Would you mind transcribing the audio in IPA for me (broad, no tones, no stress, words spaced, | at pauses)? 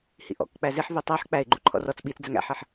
hḭʔɔ̰k k͡pæzɪħ vitˤɜħ k͡pæɪ̯ɡ͡ǃu ǃʰɔ̰rɔt͡s ɓit͡sd͡zæŋ æ̰ħɜħ